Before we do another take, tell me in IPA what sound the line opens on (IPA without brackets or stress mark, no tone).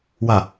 w